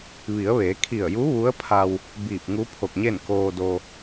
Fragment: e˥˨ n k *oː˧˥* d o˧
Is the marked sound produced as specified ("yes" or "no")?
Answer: no